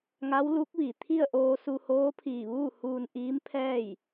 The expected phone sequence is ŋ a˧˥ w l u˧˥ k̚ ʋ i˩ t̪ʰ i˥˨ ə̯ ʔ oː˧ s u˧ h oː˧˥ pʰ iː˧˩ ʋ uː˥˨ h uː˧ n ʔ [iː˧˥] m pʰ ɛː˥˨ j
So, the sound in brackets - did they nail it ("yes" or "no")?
yes